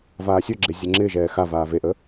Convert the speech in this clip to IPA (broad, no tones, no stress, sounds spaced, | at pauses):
v aː sʲ o ɡ͡ǁ e zʲ ə ŋ͡ǁ ɪː ʒ ɛː x a v aː v e ʔ ə